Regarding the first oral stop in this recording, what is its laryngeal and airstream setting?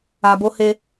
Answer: plain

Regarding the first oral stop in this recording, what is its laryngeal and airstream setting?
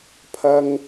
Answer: aspirated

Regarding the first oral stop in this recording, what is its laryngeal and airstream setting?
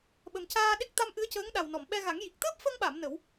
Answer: implosive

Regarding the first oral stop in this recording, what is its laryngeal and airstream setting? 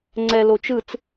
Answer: click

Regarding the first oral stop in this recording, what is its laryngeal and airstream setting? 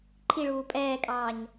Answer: click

